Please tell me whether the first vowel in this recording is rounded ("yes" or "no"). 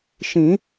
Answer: no